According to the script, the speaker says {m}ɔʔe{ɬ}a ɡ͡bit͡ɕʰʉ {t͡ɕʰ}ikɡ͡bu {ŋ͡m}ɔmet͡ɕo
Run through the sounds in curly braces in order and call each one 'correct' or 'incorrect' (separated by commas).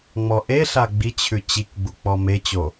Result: incorrect, correct, incorrect, incorrect